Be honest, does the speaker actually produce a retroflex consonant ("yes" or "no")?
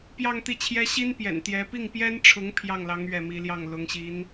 yes